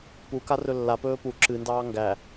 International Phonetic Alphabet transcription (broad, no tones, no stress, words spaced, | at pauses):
puka rɵlːapɵː pu ǁɨndɑː ŋɡæ